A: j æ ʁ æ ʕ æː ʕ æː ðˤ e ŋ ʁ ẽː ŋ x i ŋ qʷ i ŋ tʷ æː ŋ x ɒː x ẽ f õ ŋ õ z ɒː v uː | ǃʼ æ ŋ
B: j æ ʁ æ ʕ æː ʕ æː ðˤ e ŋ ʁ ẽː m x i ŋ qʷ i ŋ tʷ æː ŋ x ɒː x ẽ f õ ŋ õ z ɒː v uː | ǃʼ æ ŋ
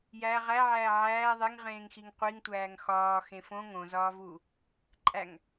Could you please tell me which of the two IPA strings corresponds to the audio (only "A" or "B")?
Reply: A